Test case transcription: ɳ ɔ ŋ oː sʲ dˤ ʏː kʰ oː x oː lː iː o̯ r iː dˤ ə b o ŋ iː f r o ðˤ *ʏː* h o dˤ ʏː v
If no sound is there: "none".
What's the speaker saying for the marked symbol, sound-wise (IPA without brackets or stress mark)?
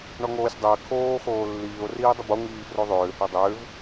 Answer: ʏː